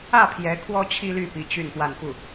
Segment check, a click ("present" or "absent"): absent